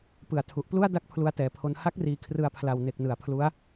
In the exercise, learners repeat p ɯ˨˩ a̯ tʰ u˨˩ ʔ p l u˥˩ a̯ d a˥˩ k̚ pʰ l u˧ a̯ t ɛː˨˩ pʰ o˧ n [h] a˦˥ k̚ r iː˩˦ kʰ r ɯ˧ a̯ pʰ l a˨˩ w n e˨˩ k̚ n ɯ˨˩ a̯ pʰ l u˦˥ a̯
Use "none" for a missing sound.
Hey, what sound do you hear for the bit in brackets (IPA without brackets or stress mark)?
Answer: h